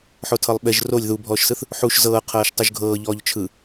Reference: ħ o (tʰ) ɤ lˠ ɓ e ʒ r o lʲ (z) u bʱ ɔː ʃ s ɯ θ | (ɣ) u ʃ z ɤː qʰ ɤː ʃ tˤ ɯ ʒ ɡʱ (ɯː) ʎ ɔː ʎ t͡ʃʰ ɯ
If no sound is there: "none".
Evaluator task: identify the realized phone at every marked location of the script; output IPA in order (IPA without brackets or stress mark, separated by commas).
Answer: tʰ, ð, ħ, ɤː